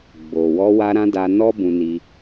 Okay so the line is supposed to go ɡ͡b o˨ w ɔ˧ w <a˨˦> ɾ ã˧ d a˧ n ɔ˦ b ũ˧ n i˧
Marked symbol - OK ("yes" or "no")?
no